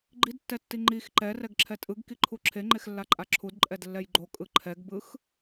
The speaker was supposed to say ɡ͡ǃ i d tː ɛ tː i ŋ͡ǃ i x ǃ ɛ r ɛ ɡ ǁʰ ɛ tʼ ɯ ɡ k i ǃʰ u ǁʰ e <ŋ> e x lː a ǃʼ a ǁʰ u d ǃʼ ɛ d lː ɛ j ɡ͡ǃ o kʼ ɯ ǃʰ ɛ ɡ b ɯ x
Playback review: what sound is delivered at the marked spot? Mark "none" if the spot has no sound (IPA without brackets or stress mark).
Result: ŋ͡ǃ